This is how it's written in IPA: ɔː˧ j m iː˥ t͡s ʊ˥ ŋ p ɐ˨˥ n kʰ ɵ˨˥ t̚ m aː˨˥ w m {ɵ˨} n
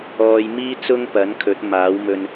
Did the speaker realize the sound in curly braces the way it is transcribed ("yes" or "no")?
no